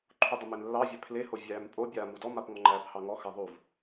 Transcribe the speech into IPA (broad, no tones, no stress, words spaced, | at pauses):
ǃʰudˤəmen lːɑvʲæ pʰleho vʲæːmpʼobʲaːmu dɔmapŋɔ ŋ͡ǃæːphɑŋɔ xaðˤuv